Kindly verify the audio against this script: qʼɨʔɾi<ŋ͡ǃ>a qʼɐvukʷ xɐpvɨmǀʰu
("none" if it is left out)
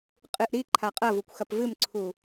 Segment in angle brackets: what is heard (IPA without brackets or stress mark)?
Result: ǃʰ